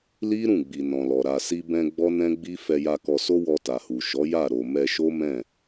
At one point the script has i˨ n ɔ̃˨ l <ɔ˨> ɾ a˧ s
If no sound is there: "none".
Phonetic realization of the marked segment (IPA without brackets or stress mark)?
ɔ˨